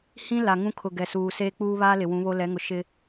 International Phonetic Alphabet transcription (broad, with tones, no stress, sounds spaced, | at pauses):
h ĩ˦ l a˨ ŋ ũ˦ kʰ ʊ˨ ɡ ɛ˨ s uː˨ s eː˦ k͡p uː˦ β aː˦ l ɪ˨ w ũ˨˦ β o˦ l ɛ˨˦ ŋ ʊ˨ ʃ ɪ˦